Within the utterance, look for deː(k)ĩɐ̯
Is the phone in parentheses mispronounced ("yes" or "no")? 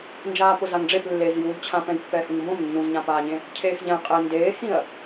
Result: yes